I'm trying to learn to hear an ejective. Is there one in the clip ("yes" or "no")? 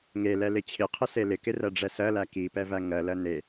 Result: no